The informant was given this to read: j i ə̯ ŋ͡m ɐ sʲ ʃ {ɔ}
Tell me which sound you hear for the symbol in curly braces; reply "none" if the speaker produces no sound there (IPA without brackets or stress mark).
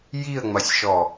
ɔ